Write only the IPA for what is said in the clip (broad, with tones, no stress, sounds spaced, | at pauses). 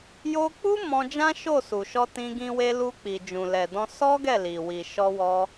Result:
j o˧ k͡p u˦ m ɔ̃˧ d͡ʒ ã˦ ʃ o˦˨ s u˨ ʃ ɔ˧ t ĩ˧ ɡ ĩ˧ w e˧ l u˧ k͡p i˨ d͡ʒ ũ˨ l ɛ˨ d ɔ̃˧ s ɔ˦ ɡ ɛ˦˨ l i˨ w i˨ ʃ ɔ˧ w ɔ˧